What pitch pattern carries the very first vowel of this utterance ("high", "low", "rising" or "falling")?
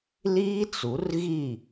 high